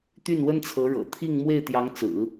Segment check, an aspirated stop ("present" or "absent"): present